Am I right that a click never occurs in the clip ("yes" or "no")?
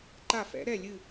no